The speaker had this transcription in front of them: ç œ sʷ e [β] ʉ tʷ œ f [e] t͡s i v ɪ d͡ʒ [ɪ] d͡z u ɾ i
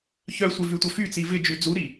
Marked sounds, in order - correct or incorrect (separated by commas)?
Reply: incorrect, incorrect, incorrect